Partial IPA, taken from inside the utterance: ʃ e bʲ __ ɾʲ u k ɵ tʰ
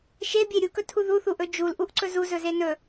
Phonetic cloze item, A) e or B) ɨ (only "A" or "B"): A